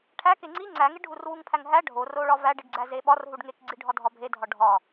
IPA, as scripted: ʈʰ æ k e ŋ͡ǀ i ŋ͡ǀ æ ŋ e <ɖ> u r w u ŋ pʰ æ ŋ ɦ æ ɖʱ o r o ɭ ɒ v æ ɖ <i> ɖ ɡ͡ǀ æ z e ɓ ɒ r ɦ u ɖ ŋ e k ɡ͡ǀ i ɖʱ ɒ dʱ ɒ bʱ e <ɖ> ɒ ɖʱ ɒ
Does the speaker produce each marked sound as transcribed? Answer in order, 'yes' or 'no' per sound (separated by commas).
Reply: no, yes, no